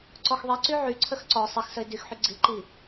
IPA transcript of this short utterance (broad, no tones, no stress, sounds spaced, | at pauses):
ǀ ɔ x ðˤ i ǀ y ʕ y ǀʰ ə x ǀ ɔ sˤ i x s ə ɪ̯ d y x ħ y ɡ͡ǀ i ǃ i